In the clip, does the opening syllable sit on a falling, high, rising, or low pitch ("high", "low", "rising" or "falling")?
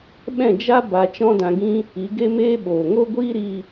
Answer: falling